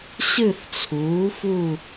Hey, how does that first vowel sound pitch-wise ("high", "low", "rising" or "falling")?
falling